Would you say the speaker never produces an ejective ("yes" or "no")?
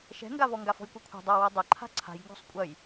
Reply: no